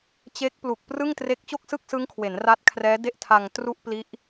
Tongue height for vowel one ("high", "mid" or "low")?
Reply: mid